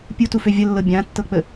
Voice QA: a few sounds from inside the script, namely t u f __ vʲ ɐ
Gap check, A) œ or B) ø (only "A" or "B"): B